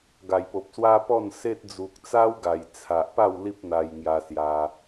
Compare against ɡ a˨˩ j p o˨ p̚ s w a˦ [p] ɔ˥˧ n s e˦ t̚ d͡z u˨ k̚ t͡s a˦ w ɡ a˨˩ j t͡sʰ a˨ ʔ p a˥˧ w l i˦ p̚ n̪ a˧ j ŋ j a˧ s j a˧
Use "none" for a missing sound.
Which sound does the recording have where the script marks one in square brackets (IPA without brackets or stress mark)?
p